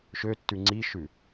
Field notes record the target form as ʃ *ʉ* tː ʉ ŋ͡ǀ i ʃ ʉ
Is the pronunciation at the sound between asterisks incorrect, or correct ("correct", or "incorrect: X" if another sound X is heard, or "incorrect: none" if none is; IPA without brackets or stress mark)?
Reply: incorrect: ø